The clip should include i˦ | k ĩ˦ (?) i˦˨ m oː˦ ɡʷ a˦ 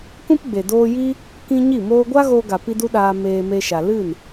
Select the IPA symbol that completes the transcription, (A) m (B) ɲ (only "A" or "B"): B